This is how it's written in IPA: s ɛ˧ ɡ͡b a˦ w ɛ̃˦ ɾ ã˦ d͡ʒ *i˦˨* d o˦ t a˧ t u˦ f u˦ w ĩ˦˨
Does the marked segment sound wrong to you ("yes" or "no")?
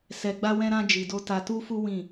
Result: yes